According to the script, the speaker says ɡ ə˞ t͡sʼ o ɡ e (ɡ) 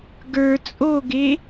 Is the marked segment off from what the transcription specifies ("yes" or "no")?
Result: yes